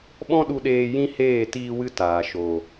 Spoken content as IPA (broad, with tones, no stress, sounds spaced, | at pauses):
ɓ ɔ̃˦ ɗ u˧ ɗ eː˧ j ĩ˦ h eː˦˨ t iː˧ w ɨ˧ t aː˨ ʃ o˨